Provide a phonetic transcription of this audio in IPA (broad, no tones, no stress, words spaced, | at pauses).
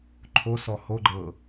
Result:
ǃʰosɔ ho ɡ͡ǃɤ